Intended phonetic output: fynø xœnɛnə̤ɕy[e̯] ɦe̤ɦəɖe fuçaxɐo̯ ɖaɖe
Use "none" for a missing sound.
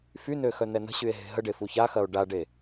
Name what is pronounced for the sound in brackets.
e̯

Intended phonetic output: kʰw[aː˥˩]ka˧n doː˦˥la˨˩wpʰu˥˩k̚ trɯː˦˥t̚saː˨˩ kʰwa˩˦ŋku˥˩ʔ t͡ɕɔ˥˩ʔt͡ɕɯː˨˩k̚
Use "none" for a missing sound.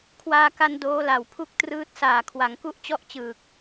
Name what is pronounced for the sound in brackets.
aː˧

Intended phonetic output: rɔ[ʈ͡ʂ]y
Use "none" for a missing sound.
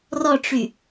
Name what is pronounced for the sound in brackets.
ʈ͡ʂ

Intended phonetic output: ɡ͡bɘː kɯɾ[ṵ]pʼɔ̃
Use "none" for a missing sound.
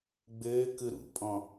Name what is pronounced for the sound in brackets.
ṵ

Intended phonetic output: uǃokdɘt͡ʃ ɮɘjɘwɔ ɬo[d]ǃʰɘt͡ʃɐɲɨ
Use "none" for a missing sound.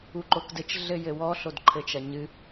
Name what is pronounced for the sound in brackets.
d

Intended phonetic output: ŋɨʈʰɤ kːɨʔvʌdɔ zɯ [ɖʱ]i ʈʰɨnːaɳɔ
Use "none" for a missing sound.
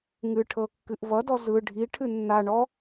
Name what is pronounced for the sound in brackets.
ɖʱ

